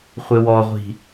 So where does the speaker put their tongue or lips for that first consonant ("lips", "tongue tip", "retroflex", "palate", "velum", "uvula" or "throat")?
uvula